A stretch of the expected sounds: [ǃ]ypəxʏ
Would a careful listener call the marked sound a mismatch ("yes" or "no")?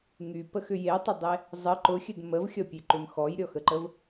yes